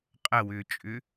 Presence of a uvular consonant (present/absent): present